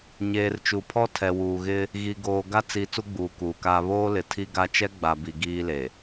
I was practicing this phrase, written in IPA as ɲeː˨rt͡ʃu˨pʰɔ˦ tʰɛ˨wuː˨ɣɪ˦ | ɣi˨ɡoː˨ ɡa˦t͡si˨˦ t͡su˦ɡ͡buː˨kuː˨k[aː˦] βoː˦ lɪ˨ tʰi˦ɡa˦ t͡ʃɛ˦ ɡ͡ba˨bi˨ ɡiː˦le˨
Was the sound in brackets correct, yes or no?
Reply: yes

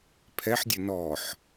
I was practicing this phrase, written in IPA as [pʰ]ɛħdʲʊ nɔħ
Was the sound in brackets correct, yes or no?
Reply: yes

